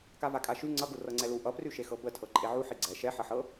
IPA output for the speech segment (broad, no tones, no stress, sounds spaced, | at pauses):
k a v a kʼ a ʃ y ŋ͡ǀ ʌ ɡ u r ɤ ŋ͡ǀ ɛ l u ʔ ʌ p r y ʃ e x ɤ b ə tʰ ɤ ǃʼ e ʕ u ħ i ɡ͡ǀ ɛ ʃ ɛ ħ ʌ ħ ɤ